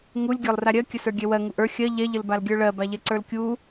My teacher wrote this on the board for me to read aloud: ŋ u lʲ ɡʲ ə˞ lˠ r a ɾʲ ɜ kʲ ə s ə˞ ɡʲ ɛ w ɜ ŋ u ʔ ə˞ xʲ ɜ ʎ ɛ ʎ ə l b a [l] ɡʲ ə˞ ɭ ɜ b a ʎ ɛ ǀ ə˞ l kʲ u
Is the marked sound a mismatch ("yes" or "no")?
no